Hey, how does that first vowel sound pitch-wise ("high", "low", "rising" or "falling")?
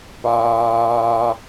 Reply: high